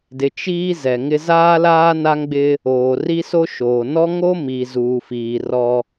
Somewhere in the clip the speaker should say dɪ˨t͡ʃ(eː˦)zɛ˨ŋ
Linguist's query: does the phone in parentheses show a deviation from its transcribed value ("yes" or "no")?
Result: yes